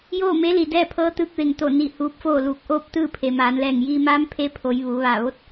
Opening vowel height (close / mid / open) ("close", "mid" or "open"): mid